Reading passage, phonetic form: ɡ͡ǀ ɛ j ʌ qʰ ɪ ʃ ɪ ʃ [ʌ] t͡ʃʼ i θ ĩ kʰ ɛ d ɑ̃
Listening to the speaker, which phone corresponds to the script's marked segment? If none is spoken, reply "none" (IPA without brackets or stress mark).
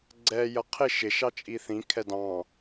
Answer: ɑ